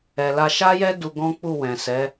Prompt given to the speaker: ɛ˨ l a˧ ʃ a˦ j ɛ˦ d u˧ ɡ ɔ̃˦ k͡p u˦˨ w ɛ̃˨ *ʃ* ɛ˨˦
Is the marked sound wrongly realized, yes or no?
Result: yes